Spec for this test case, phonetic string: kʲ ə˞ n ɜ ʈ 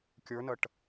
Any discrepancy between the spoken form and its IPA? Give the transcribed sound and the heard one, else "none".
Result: none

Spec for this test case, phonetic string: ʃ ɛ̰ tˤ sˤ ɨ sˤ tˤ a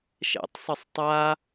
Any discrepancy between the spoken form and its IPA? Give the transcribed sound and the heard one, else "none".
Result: none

